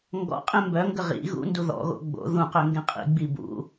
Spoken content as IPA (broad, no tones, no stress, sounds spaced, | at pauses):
ŋ ɡ ɔ̰ qʼ ẽ m b œ ŋ ɡ ə ʁ ḭ ɣ ṵ n d u ð ɔ̰ ɣ o̰ ɡ͡b o̰ ð ũ q ø ŋ ɡ ẽ qʼ ḭ ɡ͡b i b ṵ